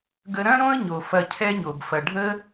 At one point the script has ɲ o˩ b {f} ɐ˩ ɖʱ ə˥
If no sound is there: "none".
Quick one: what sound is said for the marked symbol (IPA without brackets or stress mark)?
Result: f